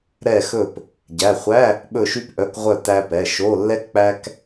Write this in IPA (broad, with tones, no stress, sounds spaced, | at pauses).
ɾ ɛ˧˩ x ɵ˧˩ p | ɟ æ˩˧˩ χʷ æ˧˥˧ | ɓ ɵ˧˩ ʃ y˧ p ʔ œ˩˧˩ k ʁʷ œ˧˩ t æ˧ p ɛ˩˧˩ ʃ o˩˧˩ lː ɛ˧ k k͡p æ˧ k